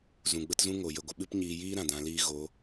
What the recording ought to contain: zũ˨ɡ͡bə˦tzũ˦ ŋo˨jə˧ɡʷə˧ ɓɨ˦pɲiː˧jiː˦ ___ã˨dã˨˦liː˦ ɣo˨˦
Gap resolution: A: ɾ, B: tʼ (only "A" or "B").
A